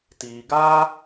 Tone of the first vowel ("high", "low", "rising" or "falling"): low